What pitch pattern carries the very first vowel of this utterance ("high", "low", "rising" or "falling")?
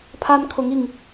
high